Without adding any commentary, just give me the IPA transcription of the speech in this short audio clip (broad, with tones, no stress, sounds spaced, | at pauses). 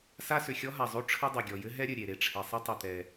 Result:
s a˥ s ʏ˩ xʲ ɔ˥ ɦ a˩ zˤ o˥ ʈ͡ʂʰ ɘ˥ dˤ o˩ ɡʲ ɔ˩ j ɘ˥ ɦ ɛ˥ ɾʲ ɘ˩ ɾʲ e˩ ɾ e˩ ʈ͡ʂʰ ɛ˩ sˤ ɘ˥ tˤ ʏ˩ t̪ ɛ˩